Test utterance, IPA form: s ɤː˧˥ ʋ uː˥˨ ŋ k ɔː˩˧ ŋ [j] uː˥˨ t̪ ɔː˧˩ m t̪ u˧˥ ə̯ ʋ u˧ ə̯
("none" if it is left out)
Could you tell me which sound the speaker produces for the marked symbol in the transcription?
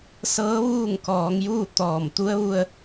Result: j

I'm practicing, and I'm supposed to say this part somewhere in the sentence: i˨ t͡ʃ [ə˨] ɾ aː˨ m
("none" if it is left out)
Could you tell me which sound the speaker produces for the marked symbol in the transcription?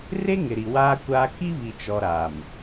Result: ɔ˨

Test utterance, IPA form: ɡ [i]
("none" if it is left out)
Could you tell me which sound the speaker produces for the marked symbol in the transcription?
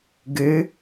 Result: ɨ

